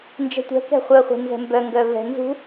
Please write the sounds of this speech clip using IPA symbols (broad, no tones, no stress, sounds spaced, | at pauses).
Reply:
n d͡ʒ ɛ̤ tʷ ɛ̤ k ɛ̤ χʷ œ χʷ ɛ̤ n z ɛ̤ m b œ ŋ ɡ œ v ɛ̤ n z ṳ